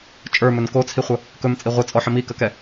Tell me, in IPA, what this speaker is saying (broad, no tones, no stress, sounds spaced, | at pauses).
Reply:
t͡ʃʼ ə˞ m ɵ n k o t͡sʰ i χʷ ə | k ɵ m t͡sʼ i ʁʷ ɯ t͡sʼ ɔ ħ ə m i k ə k ɛ